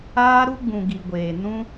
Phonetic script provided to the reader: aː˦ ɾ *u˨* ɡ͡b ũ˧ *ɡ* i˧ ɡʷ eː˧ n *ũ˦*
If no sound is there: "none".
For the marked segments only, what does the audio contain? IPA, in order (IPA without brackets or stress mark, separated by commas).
u˦, ɡ, ũ˦